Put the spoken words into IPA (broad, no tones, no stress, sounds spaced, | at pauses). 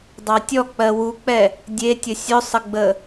dˤ ɑ tʲ ɔ k͡p ɜ w u k͡p ɛ | dʲ e tʲ ə sʲ ɵ sˤ ə ɡ͡b ə